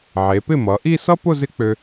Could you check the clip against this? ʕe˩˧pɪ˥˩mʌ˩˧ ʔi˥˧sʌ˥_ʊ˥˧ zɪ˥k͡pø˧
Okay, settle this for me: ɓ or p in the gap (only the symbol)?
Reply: p